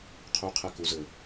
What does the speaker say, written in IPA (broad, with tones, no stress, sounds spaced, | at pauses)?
qʰ uː˧ qʰ ɛ˧ k u˩˧ z ɘː˩